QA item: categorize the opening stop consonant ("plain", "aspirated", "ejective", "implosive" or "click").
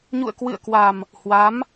plain